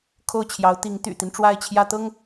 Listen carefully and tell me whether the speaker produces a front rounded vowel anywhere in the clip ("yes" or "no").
yes